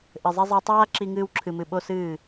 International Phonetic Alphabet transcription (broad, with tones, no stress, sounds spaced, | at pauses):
ʔ ɘ˨ zˤ i˧ zˤ ɛ˧ tˤ aː˦ ǁ i˧ ŋ ɨː˧ w ǁʰ ɨ˨ m ɨ˨ ɓ o˦ s ɨː˦˨